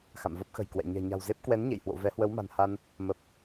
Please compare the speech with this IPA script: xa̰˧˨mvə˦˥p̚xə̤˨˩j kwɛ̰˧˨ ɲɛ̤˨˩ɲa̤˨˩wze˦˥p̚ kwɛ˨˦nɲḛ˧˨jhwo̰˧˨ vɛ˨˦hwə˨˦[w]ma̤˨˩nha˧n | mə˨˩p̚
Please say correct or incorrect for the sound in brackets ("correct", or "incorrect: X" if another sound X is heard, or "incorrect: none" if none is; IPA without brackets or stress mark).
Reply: correct